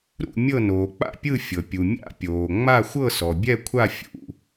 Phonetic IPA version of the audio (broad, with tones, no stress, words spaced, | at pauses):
ɾṵ˥˧ mʲɤ˥˧ noː˨k͡pa̰˥˧pʲɯ˥˧ fʲɤ˨pʲu˨mʲa̰˥˧ pʲoː˨ ŋ͡ma˥˧xʷɤ˥˧sɔ˨bʲɛ˥˧ kʷʰa˥˧ fʲṵ˨